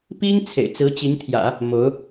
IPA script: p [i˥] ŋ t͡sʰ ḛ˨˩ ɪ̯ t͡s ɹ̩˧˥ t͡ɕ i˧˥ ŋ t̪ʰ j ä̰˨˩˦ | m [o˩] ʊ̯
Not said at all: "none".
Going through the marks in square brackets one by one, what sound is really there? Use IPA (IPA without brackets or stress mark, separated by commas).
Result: i˥, o˧˥